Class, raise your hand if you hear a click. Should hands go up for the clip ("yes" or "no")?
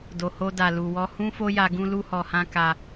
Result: no